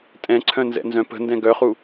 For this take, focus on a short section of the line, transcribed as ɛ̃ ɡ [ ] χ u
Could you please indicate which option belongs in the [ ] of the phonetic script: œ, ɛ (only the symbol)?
œ